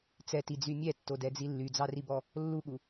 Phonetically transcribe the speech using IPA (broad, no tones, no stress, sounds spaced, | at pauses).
t͡s ɛ t i d͡z y mʲ ɛ tː o d ɛ d͡z i lː y d͡z ɑ r i b ɔ | lː u ɠ u